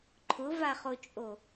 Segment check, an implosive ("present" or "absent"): absent